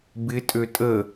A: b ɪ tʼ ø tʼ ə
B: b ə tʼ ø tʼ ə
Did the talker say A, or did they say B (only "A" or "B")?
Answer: A